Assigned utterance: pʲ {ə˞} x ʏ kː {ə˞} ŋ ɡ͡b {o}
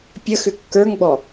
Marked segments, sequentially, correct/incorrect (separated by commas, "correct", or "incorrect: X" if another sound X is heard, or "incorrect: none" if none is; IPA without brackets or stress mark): incorrect: ə, correct, incorrect: ɔ